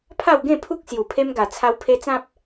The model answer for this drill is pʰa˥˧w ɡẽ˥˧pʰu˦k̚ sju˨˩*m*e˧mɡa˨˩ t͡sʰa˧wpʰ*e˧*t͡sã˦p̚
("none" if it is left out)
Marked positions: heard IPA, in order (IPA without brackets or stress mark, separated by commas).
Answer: pʰ, e˧